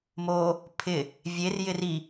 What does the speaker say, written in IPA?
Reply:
m o | pʰ ɪ | vʲ e r j ɪ r i

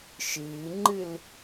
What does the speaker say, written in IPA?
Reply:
ʃ ɨː ŋ͡ǃ ɨ l

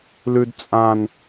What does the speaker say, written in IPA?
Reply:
l ʉ d t͡sʼ ã n

